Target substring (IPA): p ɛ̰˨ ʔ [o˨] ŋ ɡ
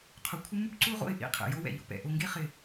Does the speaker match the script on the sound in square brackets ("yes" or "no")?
yes